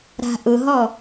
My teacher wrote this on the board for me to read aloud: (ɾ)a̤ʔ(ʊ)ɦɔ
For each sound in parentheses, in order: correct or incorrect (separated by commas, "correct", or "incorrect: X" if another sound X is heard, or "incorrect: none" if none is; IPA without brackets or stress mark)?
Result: correct, correct